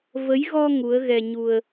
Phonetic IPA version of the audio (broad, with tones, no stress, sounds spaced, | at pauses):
v ə˨˦ j ɣ ɔ˧ ŋ u˨˦ ə̯ ɣ ɛ˧ ɲ u˧ ə̯